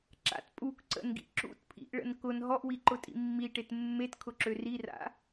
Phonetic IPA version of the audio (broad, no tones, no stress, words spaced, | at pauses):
ǁa̰t pʼuk ǀə̰nɡḭ ǁṵtpʰḭʔɭə̰n kʊn ɦɔʔwiǃʊtʼḭ mːiʈet mːetkʰʊǁø rira̰